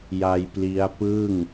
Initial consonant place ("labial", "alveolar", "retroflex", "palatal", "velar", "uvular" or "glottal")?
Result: palatal